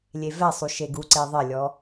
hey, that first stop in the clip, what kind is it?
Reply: plain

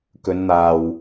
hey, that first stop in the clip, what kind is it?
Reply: plain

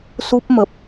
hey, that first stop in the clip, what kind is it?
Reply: plain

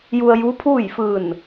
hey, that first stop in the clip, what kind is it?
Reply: aspirated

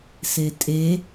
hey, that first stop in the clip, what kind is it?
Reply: ejective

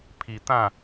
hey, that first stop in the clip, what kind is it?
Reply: aspirated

